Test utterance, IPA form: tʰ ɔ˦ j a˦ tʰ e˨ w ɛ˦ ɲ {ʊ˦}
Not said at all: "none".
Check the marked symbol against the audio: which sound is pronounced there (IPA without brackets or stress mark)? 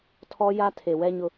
ʊ˦